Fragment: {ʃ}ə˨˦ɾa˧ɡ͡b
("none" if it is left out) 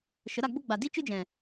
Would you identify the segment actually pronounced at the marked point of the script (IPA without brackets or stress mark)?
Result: ʃ